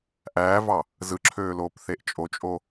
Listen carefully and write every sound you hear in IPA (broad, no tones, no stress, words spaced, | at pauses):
ʔæːvɑ | zɯǁʰøːloːpθeʔ t͡ʃʼot͡ʃʼo